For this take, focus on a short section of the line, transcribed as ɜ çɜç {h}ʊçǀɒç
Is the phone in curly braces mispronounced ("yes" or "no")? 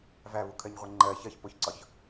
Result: yes